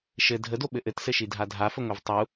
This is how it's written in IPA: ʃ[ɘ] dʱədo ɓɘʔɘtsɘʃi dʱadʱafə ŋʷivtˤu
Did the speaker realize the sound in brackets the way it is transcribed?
yes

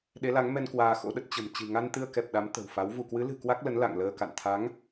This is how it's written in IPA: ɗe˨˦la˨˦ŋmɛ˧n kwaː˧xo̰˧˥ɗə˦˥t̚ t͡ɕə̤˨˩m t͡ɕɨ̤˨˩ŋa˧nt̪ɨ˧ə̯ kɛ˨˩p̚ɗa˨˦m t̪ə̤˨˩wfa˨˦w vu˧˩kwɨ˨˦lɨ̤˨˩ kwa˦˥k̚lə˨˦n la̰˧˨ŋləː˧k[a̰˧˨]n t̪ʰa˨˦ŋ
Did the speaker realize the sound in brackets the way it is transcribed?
yes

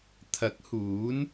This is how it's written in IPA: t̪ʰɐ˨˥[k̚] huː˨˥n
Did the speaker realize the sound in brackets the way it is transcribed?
yes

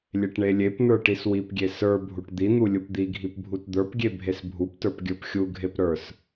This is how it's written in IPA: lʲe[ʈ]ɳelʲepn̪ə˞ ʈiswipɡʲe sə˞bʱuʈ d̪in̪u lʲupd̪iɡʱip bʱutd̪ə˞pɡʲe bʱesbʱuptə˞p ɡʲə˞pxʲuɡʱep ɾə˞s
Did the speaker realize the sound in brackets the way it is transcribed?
yes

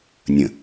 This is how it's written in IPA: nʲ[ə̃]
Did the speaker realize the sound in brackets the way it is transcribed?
yes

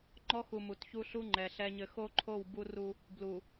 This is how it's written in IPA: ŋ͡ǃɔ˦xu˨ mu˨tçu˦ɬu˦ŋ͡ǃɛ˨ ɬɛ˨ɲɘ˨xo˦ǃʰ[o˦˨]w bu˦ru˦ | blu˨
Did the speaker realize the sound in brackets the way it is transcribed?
yes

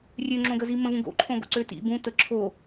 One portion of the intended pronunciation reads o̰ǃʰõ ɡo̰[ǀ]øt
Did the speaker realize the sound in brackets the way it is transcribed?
yes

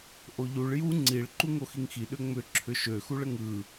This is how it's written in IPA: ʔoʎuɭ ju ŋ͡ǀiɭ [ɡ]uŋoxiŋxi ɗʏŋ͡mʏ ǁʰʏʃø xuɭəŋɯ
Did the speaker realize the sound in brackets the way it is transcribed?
no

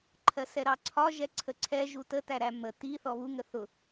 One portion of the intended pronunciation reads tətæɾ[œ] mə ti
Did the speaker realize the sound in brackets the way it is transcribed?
no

